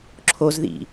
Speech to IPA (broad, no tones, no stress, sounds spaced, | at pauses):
ǁʰ o z ð ḭ